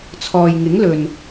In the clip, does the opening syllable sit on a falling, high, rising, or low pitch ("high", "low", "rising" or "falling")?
low